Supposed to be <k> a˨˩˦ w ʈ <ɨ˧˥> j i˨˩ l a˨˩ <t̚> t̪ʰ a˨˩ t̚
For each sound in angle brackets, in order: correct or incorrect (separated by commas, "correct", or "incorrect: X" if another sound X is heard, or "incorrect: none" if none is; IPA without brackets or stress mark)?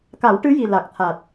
correct, correct, incorrect: k̚